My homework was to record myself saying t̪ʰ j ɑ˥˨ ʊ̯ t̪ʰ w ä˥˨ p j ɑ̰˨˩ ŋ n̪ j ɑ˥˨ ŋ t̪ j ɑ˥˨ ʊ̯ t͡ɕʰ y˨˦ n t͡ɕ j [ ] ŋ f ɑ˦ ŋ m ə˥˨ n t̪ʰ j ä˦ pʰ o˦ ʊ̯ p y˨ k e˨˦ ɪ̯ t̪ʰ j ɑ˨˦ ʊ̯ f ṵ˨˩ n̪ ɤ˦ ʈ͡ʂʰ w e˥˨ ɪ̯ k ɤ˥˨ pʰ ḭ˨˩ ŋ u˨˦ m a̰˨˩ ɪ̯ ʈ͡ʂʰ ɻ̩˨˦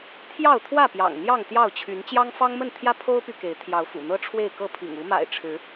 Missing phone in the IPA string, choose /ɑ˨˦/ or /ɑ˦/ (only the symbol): ɑ˦